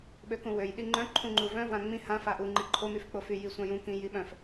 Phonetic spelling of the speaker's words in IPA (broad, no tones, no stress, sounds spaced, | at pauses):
ɓ ø k ũ w ø j ɗ i ŋ͡ǃ œ̃ ǃʰ ũ ŋ͡ǃ u v œ̃ v ã ŋ͡m ĩ h ã f a ʔ u ŋ͡ǃ i ǃʰ o m y f k͡p o f y j i sʷ ã j ũ k ĩ j i ɓ œ̃ f